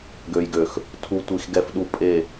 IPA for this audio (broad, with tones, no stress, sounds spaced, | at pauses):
ɡ ø˨ j ɡ ø˨ x | tʰ u˨ tʷ i˨ x ɡ ɛ˨ f ɗ u˨ pʼ e˨